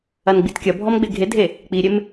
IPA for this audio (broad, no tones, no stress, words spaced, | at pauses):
ɐnɡ͡bitkʲɐbʱɔm ɡ͡beɡʱedʱe | k͡piɾʲem